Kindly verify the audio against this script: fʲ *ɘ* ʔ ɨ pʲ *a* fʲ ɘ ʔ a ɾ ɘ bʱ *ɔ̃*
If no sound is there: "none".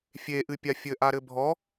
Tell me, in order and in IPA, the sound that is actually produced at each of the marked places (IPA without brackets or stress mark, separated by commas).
e, a, ɔ